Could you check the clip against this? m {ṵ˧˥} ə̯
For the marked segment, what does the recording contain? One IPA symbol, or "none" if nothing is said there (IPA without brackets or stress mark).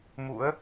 ṵ˧˥